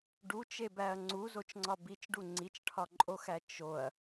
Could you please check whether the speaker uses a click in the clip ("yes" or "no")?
yes